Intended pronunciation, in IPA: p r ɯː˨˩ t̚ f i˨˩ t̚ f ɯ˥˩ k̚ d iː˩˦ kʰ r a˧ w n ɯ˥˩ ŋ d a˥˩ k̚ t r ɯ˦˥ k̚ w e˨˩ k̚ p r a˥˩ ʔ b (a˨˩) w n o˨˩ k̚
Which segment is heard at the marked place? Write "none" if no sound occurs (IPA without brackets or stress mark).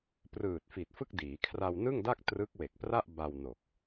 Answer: a˧